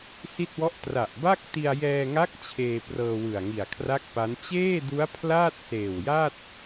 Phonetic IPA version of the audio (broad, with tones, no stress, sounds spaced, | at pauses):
s i˥˩ t̚ w ɔ˥˩ ʔ t r a˨˩ ʔ b a˥˩ k̚ t i˧ a̯ j ɛː˧ ŋ a˦˥ k̚ t͡ɕʰ eː˧ p r ɤː˧ w ɯ˨˩ a̯ ŋ i˨˩ a̯ kʰ r a˥˩ k̚ p a˦˥ n t͡ɕ eː˥˩ d u˦˥ a̯ pʰ l aː˥˩ t̚ s eː˨˩ w j a˥˩ t̚